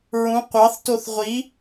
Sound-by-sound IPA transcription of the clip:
ɹũ qʷɑθtoθ ʁʷi

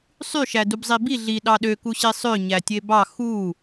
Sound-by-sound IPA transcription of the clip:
sˤyʃæ dubzˤibi ɮi ɗɑɗø kuɕisˤø ɲætʲebɑ xu

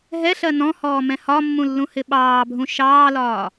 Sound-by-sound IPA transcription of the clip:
ɦɛɬɜ nɔ̃hɔːmɛ̃ hɒmːũlːũhɪ ɓɑːbʱũ ʃɑːlɒː

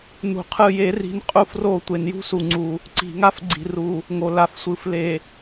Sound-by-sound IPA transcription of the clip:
nṳ˨qʰɯ˦˨je˦ ri̤˦n qʼu˦fro˦˨ tʷe˨njṳ˦su˨ ŋ͡ǀu˨ | ǀi̤˨ŋa˦f ɡ͡ǀi̤˨ru˨ | ŋo˨ la˨fsʷɯ˨fle˨

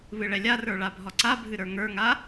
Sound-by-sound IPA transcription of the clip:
βɨɭɛlʲarə˞ ɭabʱɒǀabʱɨ ɾə˞ŋə˞ŋa

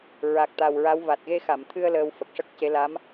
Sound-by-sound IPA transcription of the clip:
ɹa˨˩k̚t̪a˨˩w ɹa˧˥w va˨˩t̚ɣe˧xa˨˩˨mt̪ʰɨ˧ə̯ ləː˧wfə˨˩k̚ ʂə˦˥k̚ce˧˥ la˧˥m

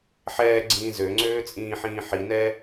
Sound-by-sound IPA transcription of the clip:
ħɛːɡ͡ǀĩː zøŋ͡ǀøː t͡sʼĩːħĩːħinɛː

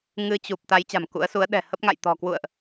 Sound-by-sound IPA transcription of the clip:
ŋɨ˧t͡ɕu˨˩p̚ t̪a˨˦j t͡ɕa̤˨˩mkṵ˧˥ə̯su˨˦ə̯ ɗɛ̤˨˩ hə˦˥p̚ŋa̰˧˨j t̪ɔ̤˨˩kwṵ˧˨ə̯ʔ

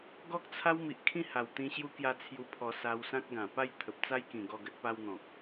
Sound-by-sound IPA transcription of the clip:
ɡɔ˦k̚t͡sʰa˦w mi˨ʔkʰĩ˥˧ ha˨˩wt̪ĩ˧ ɕju˧kja˧ t͡sʰju˧pʰɔ˧ sa˧wsã˦k̚ɡã˨˩ pa˥˧j t̪ʰə˨p̚t͡sa˦jkĩ˨˩ ɡɔ˥˧ɡə˦t̚pa˦wn̪ɔ̃˨k̚

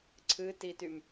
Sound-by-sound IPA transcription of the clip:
ǀʰɨtitym

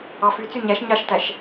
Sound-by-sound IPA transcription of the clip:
ɑfyt͡sy ɲæʃ ɲɑʃtæʃ

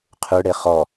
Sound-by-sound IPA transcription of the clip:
qʰʉɽe χɔ

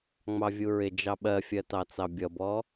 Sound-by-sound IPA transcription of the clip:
ŋ͡mɑvʲuɹɪ d͡ʒɑɓɜfʲɜ tɑt͡sɑbʲʌbɔ

